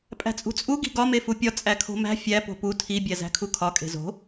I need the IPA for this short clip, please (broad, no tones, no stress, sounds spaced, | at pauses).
pʼ æ̤ t͡sʼ ṳ t͡sʼ u ɡ i̤ ɡ ɒ m e f u pʲ ɒ t͡sʼ æ kʰ o̤ m æ̤ fʲ æ p o̤ p u tʰ i bʲ æ z æ̤ kʰ u kʰ ɒ kʼ e̤ z o̤